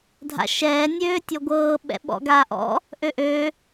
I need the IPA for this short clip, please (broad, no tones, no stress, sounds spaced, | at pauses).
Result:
dʱ a̰ ʃ ɛː nʲ øː tʲ ɔ ɡʷ ɤː ɓ ɛ̰ ɓ ɔ̰ ɡ aː ʔ ɔ̰ | ʔ ø ʔ ø